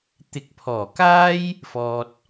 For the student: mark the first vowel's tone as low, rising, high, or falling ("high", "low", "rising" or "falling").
rising